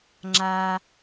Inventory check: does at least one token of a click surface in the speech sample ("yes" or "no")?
yes